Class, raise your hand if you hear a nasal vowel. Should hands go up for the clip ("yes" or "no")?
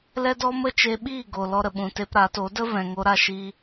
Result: yes